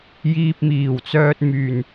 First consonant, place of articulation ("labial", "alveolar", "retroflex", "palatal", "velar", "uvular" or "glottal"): palatal